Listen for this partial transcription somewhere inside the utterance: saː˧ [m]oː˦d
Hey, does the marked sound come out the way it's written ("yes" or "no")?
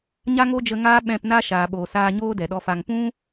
no